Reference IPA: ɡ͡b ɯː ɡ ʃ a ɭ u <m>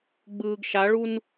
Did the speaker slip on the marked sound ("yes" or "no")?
yes